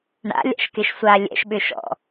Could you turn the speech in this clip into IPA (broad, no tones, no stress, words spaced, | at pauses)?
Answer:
ɳa̰lʲa̰ʃkɪʃsʷa lʲɛ̰ʃɓʏʃɔ̰